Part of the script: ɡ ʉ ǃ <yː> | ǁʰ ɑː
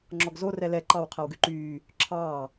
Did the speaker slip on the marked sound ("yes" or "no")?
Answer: no